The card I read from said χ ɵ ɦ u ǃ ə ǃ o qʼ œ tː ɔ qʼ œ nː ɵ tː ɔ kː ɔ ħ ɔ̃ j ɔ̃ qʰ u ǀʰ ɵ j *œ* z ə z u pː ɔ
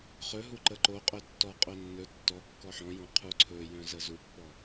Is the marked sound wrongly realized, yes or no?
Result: yes